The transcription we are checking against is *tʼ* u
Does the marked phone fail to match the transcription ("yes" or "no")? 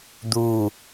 yes